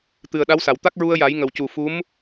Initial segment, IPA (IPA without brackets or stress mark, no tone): t̪